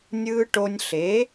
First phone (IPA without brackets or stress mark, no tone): nʲ